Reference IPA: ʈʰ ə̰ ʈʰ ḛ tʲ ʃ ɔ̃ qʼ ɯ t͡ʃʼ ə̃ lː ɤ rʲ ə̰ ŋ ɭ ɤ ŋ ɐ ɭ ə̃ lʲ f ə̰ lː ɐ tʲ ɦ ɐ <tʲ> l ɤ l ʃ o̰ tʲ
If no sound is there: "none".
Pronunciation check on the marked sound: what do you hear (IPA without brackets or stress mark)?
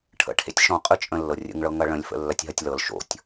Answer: tʲ